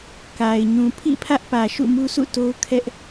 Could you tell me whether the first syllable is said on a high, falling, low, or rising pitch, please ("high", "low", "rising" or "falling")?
low